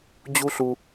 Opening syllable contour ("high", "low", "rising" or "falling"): high